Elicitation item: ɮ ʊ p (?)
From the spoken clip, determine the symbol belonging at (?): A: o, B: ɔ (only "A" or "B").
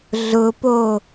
A